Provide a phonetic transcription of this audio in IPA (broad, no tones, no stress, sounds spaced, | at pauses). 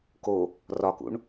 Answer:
k o | r ɒ k ṵ ɳ